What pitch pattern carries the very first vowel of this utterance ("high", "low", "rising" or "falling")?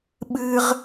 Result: high